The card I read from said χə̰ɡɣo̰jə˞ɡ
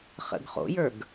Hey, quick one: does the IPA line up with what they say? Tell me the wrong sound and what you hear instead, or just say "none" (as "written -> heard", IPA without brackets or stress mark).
ɣ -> χ